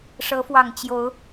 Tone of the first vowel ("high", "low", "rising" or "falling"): rising